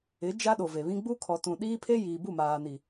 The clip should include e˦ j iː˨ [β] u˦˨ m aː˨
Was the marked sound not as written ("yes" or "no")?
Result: yes